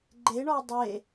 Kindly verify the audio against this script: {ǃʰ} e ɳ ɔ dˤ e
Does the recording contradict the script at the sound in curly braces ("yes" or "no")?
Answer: yes